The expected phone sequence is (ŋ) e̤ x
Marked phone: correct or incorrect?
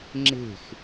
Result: incorrect